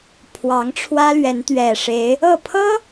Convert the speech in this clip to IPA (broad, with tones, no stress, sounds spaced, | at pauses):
pʰ w ɑ˨˦ ŋ ʈ͡ʂʰ w ä˦ l ɥ ɛ˨˦ n t̪ ɥ ɛ˨˩ ʂ e˨˦ ɪ̯ | ɤ˥˨ pʰ ɤ˦